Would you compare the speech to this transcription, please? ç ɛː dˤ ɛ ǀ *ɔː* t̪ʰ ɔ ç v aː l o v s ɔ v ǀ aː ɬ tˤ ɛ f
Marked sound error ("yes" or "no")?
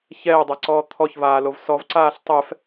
no